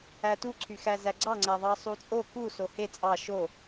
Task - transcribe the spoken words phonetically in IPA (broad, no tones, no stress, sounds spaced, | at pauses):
æ t u ǀʰ y x æ z æ ɡ͡ǀ ɑ ŋ͡ǀ æ ðˤ ɑ sˤ u t͡sʼ o k u s o h e t͡sʼ ɑ ʃ o